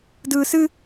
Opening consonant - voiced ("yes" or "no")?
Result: yes